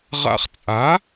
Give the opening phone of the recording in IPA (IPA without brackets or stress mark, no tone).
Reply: ʁ